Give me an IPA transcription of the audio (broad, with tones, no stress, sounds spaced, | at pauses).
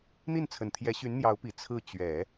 n̪ i˥˩ n t͡sʰ ə˨˩ n t̪ʰ j ɛ˧˥ ɕ y˧˥ n n̪ j ɑ˧˥ ʊ̯ p i˨˩ t͡sʰ ɹ̩˥˩ t͡ɕ ɥ ɛ˨˩˦